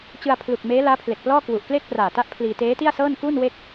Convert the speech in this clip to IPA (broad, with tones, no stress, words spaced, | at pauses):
t͡ɕɯ˧a̯pʰlu˨˩k̚ meː˦˥laː˦˥pʰle˨˩k̚plɔː˥˩ kwu˨˩ʔkle˥˩k̚praː˨˩ta˦˥ʔ pʰliː˧teː˦˥ti˥˩a̯sɤː˥˩n kuː˥˩nwe˥˩k̚